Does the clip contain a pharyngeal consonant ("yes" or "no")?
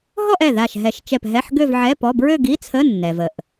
yes